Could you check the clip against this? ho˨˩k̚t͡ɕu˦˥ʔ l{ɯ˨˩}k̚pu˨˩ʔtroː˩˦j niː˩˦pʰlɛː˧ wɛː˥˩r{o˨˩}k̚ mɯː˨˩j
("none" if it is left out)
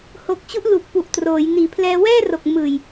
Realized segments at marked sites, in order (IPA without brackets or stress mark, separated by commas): u˨˩, o˨˩